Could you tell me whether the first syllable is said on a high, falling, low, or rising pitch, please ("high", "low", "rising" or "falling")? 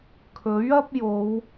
rising